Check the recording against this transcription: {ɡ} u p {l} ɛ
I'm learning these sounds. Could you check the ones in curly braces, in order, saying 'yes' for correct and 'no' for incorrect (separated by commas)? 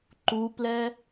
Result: no, yes